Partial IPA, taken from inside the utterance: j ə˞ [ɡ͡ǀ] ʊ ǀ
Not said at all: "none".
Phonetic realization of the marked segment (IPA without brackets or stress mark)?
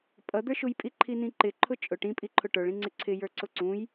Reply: ǀ